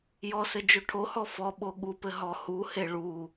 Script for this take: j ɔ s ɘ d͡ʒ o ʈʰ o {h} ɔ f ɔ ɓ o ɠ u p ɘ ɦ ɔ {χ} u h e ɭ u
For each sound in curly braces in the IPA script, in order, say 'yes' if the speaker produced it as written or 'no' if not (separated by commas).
yes, no